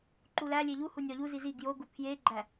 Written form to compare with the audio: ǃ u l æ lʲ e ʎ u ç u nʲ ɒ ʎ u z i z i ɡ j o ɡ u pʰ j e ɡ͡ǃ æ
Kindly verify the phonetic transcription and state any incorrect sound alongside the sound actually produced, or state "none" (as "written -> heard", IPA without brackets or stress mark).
ç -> h